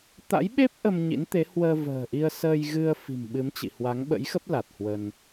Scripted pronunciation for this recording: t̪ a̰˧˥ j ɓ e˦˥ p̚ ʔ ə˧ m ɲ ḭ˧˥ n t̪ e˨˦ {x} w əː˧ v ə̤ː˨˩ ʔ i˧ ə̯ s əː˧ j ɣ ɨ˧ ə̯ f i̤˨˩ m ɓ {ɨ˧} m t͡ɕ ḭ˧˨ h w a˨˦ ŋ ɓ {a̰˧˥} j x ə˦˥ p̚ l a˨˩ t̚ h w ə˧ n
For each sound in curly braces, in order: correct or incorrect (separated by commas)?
incorrect, incorrect, incorrect